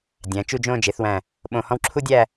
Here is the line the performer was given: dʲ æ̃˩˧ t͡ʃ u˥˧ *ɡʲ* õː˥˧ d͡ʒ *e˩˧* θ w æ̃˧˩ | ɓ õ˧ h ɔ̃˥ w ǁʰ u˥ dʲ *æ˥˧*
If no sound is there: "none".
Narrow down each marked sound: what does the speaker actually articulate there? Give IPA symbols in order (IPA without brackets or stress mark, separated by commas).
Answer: d͡ʒ, e˩˧, æ˥˧